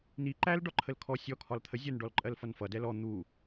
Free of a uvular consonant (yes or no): yes